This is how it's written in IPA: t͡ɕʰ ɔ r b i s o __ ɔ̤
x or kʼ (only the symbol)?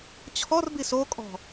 kʼ